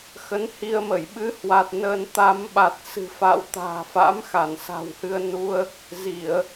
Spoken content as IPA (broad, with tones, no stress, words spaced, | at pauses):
xə˨˦nhi˧ə̯mə˧˩j ɓɨ˨˦hwa˨˩t̚ nə˧n t̪a˧m ɓa˨˩t̚sɨ̤˨˩fa̰˧˨w t̪a̤ː˨˩fa̰˧˥mxa˧˩n sa̤˨˩whɨ˧ə̯nu˧ə̯ | zi˧˩˨ə̯